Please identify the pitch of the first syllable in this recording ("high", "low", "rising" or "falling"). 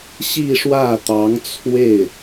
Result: falling